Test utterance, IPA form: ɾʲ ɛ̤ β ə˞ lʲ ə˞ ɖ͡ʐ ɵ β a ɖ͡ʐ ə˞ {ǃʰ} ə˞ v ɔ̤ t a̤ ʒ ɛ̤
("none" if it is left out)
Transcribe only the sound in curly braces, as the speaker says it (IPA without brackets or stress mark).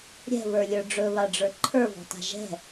ǃʰ